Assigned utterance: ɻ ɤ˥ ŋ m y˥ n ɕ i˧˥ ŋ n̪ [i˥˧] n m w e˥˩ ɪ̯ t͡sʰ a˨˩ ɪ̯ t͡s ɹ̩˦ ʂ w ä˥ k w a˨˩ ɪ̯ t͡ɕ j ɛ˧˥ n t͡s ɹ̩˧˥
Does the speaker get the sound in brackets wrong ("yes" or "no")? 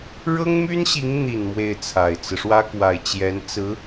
yes